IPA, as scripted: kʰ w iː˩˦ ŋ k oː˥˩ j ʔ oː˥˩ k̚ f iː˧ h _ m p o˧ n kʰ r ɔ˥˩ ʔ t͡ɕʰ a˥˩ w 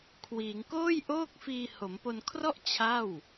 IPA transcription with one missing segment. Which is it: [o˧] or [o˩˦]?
o˩˦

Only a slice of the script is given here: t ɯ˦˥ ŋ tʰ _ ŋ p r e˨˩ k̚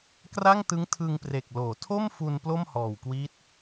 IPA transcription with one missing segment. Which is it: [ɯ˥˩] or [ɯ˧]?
ɯ˧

